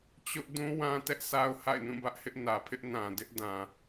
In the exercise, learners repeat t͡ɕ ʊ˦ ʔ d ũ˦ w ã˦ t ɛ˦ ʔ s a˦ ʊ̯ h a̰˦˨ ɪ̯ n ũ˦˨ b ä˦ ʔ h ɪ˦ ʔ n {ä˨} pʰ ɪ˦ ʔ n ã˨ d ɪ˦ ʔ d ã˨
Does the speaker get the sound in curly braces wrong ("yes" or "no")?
no